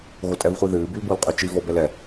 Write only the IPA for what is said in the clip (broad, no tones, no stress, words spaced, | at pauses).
ɣotʼɛvχʷiðɨː bylbolqʼyt͡ʃi vɔbɛlɛ